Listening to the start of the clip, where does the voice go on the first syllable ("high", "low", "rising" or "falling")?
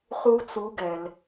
high